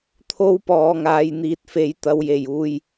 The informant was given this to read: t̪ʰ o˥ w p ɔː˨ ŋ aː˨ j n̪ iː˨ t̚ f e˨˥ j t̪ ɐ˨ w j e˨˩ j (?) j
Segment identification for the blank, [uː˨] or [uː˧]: uː˨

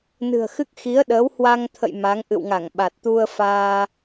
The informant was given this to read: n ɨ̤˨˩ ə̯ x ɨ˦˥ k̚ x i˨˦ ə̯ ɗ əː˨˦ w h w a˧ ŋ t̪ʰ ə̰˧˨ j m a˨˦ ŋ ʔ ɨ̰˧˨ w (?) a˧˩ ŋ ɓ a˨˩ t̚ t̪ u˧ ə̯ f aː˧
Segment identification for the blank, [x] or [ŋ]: ŋ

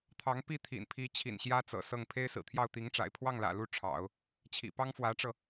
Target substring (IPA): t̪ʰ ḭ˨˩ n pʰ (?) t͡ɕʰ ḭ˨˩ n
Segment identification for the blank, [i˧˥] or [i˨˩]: i˧˥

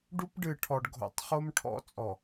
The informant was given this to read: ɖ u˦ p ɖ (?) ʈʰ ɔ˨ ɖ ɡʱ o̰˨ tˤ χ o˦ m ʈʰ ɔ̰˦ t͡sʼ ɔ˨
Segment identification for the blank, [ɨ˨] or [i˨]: ɨ˨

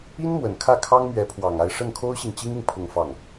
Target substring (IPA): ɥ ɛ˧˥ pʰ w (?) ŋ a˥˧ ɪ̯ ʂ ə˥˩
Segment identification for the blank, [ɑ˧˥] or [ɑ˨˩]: ɑ˨˩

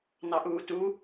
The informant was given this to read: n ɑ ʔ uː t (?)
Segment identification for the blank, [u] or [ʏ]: u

